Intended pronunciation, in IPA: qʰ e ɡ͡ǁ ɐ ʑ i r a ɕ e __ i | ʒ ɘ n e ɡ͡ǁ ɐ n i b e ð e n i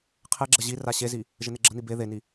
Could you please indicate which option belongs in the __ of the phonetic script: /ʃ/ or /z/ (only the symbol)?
z